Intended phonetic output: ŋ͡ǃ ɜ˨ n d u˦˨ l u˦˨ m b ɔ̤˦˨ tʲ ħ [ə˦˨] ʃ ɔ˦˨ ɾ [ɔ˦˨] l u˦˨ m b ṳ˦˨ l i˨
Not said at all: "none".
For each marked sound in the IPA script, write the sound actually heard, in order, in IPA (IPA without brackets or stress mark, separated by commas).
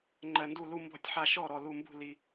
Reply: a˦˨, ɔ˨